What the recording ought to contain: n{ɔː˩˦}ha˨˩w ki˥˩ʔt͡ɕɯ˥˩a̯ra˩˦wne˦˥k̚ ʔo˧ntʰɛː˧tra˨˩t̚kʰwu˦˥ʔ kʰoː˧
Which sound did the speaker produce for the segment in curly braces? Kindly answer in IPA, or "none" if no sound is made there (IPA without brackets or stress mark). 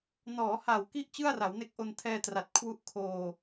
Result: ɔː˩˦